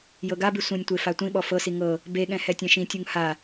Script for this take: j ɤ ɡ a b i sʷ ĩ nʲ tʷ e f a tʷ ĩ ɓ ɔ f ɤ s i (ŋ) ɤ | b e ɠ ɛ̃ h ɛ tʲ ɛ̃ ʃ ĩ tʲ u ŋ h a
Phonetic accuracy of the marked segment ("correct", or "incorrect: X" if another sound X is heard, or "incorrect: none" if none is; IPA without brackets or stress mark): correct